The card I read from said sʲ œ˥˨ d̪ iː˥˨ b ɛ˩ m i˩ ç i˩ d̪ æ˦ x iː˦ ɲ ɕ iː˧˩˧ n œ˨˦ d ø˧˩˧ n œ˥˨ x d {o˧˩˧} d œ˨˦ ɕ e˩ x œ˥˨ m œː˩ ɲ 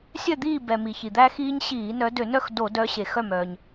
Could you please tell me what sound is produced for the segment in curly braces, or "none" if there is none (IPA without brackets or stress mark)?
o˧˩˧